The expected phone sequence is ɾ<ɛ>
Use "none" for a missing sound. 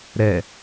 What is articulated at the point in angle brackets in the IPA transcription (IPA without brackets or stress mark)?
ɛ